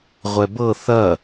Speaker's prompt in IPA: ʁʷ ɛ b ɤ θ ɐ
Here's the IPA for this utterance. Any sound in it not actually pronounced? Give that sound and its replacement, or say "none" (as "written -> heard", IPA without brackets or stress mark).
none